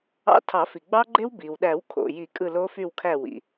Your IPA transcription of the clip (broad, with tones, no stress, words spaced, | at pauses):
ɑ̰˧˥˧ tʰɑ˨˩˦fi˩ ɡ͡bɑ˦˥ɡ͡ǃe˦˥w bi˩wɗæ˨˩˦wkʰo̰˩ji˨˩˦ kʼɯ˦˨lo˦˥fy˦˨wkʰæ˦˨ wḭ˩